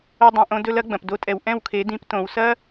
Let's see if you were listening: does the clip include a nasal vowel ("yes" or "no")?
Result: yes